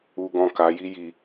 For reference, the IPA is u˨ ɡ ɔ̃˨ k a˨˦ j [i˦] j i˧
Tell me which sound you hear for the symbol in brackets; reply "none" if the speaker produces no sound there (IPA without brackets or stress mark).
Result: i˦